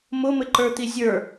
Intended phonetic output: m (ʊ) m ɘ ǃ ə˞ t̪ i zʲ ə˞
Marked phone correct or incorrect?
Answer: correct